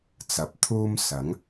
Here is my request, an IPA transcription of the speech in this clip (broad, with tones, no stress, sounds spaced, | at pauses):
t͡s ɐ˨ p̚ t̪ʰ uː˥ m s ɐ˨˥ ŋ